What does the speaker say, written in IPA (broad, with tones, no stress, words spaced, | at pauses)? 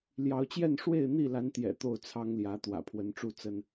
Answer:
ljɑ˨˦ʊ̯t͡ɕjɛ˥˨n ʂwe˥˨ɪ̯n̪i˥˨la˨˦nt̪jɛ̰˨˩ t̪o˥˨ʊ̯t͡sʰɑ˦ŋljä˨˦ t̪wä̰˨˩pʰwə˨˦nʈ͡ʂu˥˨ t͡sə˦n